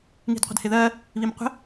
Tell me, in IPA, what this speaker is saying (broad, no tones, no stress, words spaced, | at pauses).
ŋi̤dqʷə̤dhɪðɜ | βimqʷə̤